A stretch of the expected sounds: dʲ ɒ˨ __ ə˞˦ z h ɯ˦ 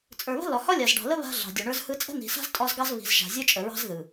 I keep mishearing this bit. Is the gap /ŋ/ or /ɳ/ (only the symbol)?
ɳ